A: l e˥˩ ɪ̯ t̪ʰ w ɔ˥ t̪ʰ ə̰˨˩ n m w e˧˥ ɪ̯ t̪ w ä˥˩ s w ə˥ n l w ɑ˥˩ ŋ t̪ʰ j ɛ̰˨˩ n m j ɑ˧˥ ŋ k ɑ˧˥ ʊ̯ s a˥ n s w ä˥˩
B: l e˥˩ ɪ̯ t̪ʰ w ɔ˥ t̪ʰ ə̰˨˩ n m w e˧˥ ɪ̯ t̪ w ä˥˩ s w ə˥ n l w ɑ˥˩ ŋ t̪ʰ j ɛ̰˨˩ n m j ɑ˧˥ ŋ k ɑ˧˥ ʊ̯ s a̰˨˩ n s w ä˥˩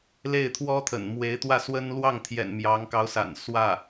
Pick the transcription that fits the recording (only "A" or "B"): B